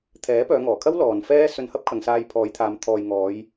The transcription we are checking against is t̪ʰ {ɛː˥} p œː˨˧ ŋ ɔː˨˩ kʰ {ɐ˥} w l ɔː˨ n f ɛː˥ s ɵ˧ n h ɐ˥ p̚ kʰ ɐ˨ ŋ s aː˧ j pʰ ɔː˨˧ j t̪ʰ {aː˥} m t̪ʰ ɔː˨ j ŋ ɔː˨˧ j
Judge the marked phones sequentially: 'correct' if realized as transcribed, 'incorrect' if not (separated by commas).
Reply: incorrect, correct, incorrect